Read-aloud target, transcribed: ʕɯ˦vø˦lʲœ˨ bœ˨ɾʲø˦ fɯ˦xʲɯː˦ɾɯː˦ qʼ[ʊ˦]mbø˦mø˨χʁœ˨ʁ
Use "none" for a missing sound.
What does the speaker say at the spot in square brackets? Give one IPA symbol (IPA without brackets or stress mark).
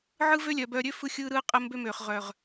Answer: ə˦